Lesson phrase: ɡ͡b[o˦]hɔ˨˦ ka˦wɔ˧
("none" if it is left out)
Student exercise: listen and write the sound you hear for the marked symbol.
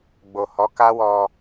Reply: o˨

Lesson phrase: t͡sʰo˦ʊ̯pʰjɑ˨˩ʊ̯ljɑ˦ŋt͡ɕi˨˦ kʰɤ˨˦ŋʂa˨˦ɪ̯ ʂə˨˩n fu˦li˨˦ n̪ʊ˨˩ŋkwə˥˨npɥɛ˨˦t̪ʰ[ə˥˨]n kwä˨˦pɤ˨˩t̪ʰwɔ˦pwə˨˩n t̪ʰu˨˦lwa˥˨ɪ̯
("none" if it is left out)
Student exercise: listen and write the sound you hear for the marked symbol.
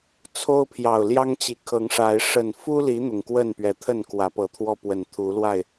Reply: ə˥˨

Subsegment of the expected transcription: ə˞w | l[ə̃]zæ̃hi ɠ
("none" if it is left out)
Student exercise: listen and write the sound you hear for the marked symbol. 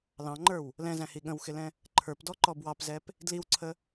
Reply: ɛ̃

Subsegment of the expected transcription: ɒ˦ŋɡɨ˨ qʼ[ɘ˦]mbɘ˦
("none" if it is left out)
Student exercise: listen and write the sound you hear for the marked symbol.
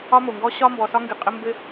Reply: ɘ˦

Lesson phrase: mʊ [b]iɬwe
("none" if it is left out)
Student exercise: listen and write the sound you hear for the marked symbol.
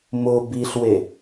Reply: b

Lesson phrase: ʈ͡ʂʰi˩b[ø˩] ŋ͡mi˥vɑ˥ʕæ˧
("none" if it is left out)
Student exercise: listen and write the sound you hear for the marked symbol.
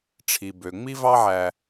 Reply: ø˩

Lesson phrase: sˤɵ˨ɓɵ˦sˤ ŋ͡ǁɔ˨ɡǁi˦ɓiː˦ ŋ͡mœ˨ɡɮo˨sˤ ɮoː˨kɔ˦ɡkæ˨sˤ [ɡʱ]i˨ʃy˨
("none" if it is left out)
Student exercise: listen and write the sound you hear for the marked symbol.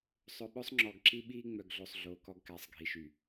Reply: ɡʱ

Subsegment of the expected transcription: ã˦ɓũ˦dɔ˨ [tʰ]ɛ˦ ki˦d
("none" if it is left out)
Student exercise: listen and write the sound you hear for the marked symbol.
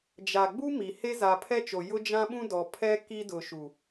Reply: pʰ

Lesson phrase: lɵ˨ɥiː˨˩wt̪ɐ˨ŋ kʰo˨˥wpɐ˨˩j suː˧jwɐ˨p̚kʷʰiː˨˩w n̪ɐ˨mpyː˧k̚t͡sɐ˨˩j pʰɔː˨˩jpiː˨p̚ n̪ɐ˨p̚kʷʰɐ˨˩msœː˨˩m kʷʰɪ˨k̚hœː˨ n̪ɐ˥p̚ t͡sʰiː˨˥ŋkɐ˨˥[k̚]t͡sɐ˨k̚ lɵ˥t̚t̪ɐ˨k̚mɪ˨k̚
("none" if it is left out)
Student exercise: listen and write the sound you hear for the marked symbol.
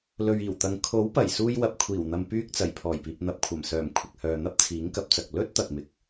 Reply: p̚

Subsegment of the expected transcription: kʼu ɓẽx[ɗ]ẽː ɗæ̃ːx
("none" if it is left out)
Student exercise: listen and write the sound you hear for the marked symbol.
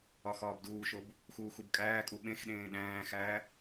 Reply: ɗ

